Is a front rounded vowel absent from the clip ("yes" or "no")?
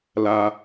yes